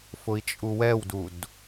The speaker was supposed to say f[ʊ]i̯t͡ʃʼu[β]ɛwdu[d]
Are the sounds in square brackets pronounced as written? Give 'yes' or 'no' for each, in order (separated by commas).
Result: yes, no, yes